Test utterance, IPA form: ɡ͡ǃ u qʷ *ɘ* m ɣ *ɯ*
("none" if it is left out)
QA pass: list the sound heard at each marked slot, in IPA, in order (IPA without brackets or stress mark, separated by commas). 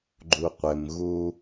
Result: ɘ, u